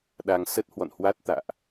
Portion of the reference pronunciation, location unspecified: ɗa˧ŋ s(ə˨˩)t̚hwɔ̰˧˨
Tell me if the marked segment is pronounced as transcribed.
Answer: no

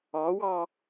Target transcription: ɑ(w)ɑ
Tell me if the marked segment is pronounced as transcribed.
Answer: yes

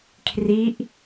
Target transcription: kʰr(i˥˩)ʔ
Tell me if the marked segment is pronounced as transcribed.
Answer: no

